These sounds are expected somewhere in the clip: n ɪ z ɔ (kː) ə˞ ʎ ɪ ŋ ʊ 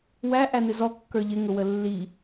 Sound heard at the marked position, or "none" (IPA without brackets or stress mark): kː